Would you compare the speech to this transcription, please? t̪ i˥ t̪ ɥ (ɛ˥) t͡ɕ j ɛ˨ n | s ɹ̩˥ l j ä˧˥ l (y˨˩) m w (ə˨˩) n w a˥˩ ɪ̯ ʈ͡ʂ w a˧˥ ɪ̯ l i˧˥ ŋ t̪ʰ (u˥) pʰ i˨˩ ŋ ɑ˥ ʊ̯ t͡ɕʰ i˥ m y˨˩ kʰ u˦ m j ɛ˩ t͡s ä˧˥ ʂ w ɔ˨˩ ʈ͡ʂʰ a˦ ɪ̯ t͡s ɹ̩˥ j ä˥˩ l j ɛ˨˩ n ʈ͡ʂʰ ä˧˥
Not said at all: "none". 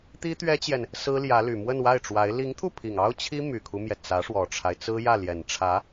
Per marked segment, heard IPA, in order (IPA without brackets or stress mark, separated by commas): ɛ˥, y˨˩, ə˥˧, u˥˩